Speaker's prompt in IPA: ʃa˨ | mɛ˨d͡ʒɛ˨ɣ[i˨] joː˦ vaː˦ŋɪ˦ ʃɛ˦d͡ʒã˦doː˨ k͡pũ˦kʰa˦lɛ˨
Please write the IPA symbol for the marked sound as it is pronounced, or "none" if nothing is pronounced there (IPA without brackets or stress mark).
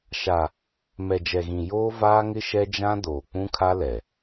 ĩ˨